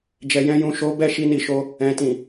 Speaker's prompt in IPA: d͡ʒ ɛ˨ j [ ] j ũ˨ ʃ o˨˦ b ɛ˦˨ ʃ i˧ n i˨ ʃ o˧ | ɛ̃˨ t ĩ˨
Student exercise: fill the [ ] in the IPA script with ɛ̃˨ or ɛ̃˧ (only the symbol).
ɛ̃˧